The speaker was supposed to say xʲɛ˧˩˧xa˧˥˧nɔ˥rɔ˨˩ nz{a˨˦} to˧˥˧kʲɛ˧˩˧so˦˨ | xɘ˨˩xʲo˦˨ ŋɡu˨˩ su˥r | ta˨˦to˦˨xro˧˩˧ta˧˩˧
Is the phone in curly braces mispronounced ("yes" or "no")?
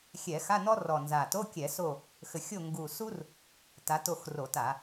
yes